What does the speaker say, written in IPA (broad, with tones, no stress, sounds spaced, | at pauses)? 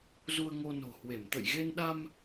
z u˧ ə̯ ŋ o˧ n o̤˨˩ h w e˧˩ m t̪ ə̰˧˨ j ɣ e˧ n ɗ a˧ m